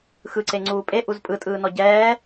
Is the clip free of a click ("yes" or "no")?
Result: no